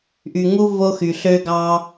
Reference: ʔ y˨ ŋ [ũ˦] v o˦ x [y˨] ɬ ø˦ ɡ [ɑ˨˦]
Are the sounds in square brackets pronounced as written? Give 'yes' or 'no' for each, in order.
no, yes, no

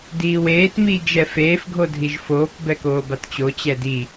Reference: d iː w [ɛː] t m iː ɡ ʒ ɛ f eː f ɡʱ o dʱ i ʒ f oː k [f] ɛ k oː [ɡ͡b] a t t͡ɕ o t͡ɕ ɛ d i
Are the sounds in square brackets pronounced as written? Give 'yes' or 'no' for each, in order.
no, no, no

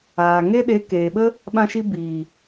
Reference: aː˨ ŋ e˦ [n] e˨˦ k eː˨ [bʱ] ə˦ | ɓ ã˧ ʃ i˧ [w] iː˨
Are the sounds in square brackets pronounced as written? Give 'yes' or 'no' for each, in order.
no, no, no

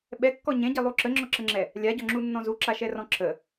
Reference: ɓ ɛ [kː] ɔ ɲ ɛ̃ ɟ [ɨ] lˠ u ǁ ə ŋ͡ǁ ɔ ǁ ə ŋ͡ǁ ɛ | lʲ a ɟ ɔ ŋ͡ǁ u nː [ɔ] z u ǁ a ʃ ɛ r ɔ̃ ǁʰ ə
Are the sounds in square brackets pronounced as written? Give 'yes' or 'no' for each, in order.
yes, no, no

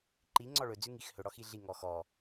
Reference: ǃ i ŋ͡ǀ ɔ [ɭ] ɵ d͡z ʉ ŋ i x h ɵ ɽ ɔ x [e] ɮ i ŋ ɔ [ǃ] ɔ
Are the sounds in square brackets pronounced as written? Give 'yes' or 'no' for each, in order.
yes, no, no

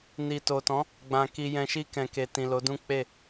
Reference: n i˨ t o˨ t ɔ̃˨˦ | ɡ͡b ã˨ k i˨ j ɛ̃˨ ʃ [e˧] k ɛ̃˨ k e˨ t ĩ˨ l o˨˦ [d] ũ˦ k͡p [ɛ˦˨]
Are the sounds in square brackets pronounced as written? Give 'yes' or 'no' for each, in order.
no, yes, no

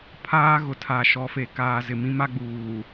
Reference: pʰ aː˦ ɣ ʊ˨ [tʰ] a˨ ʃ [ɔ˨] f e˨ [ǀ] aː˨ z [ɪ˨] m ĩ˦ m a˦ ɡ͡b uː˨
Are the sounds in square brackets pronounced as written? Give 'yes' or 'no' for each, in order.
yes, yes, no, yes

